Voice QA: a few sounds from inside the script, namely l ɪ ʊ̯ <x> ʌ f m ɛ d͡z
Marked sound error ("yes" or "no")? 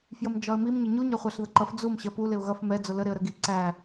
yes